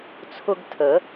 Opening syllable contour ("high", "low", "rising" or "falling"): high